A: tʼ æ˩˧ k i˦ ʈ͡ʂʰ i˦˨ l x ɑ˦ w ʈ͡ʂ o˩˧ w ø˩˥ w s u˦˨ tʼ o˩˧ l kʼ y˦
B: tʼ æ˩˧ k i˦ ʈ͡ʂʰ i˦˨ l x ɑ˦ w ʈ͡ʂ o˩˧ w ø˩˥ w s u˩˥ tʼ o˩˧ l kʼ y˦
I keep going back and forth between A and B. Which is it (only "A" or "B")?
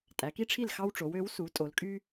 B